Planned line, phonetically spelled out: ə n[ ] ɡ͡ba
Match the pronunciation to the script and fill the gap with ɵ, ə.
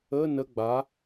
ə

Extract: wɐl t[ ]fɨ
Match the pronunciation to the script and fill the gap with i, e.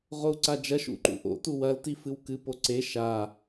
i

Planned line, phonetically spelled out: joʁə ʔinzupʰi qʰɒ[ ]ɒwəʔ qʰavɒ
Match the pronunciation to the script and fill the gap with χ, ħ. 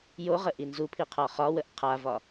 χ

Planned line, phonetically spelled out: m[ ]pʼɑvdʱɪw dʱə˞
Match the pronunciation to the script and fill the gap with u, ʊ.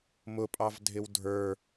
ʊ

